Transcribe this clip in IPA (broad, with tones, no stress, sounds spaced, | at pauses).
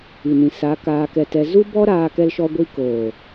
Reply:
i˨ n ĩ˨ s a˨˦ k aː˧ k ɛ˧ t ɛ˧ z u˦ b ɔ˦ ɾ aː˦ k ɛ˦ l ʃ ɔ˦ ɡʷ i˦ k oː˨